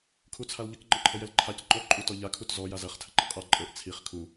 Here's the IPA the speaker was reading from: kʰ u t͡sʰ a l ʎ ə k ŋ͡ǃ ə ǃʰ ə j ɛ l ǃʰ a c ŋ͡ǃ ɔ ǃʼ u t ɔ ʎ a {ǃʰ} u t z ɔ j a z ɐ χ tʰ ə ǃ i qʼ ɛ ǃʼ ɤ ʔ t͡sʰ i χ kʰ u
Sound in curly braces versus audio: incorrect: kʰ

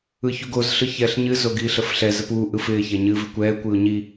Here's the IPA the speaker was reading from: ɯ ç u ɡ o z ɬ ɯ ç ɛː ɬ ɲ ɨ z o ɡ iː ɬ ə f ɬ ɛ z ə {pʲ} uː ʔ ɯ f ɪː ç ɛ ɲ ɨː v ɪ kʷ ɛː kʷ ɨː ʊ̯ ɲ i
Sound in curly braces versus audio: incorrect: p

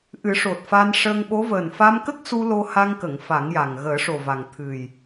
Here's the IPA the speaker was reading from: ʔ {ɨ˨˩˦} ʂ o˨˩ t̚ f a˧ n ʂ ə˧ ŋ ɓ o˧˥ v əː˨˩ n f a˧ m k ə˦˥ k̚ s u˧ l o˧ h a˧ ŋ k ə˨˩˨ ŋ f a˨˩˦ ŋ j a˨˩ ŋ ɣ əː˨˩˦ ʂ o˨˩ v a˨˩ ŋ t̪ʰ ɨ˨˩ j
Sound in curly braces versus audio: correct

